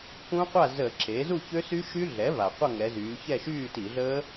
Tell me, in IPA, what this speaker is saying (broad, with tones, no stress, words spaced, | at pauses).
kũ˦˥qʷa˥˨ zə˧˩˧ǁe˩˥ zu˥˨çø˦˥sy˦˥ʃy˦˥ ɮɛ˩˥va˩ qʷə˥˨ŋɛ˩˧zyː˩˧ çɛ˥˨ʃyː˥˨ti˧˩˧ɮəː˦˥